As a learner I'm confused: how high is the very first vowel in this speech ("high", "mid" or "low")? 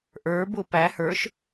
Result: mid